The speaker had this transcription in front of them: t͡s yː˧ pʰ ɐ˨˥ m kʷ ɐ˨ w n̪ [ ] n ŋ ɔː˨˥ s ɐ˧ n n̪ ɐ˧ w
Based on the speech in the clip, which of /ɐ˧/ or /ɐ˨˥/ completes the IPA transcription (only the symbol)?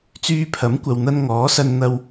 ɐ˧